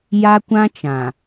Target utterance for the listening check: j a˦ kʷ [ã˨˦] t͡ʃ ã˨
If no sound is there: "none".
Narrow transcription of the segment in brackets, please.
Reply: ã˦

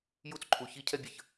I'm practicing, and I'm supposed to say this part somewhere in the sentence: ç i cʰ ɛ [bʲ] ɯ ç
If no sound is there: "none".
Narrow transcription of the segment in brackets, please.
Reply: bʲ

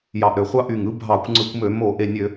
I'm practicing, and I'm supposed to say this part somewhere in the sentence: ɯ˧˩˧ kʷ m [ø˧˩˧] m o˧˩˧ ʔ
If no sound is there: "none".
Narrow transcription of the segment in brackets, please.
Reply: ø˧˩˧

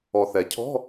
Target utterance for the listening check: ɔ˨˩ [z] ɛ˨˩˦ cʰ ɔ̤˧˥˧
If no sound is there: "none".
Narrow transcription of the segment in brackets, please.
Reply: θ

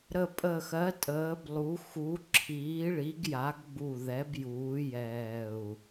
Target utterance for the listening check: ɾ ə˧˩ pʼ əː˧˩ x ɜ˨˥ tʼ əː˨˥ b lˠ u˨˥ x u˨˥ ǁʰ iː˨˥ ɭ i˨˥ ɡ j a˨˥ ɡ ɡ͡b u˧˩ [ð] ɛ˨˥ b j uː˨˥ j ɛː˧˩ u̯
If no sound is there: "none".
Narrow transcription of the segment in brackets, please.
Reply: ð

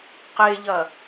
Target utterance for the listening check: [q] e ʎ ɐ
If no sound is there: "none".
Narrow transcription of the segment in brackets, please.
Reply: q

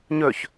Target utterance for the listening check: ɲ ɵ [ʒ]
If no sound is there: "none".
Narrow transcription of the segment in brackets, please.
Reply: ç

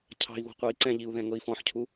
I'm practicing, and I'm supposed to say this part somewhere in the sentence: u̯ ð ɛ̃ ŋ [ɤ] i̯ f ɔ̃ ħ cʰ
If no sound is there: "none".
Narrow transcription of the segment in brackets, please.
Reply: ɤ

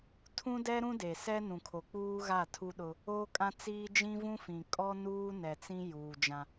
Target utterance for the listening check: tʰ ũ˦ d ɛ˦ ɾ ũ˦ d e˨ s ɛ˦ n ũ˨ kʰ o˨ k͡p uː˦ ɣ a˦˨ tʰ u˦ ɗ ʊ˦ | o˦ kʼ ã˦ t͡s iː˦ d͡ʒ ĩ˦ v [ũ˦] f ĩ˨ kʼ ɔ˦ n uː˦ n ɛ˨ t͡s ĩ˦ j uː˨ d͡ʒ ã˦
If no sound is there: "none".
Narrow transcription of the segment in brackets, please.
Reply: ũ˦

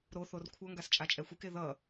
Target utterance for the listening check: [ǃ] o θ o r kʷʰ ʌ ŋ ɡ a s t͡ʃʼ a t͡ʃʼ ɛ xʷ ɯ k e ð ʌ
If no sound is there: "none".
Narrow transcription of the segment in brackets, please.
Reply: ɾ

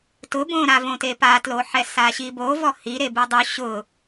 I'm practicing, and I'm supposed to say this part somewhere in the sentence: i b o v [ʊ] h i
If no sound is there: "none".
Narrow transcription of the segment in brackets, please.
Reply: ɔ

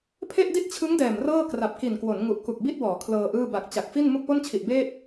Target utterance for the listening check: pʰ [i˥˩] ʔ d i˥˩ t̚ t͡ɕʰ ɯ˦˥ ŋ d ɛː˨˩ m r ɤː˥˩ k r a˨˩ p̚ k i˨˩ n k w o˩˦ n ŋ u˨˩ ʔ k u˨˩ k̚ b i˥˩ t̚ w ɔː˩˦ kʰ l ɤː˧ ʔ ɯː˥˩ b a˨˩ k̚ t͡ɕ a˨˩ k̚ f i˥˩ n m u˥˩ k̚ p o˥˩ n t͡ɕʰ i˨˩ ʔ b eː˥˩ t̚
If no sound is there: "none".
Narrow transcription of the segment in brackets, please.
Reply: e˥˩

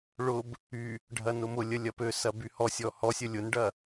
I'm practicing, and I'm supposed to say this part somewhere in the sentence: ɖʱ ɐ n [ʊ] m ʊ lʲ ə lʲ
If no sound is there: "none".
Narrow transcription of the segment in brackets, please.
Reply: ʊ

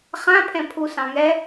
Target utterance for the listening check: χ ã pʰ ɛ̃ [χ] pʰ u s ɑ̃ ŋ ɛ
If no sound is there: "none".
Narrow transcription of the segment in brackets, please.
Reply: none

